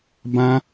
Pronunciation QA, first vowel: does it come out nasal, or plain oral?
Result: nasal